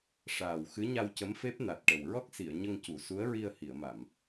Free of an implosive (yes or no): yes